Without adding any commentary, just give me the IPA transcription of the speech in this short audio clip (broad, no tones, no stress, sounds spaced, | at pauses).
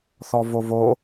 θ ɔ v o v o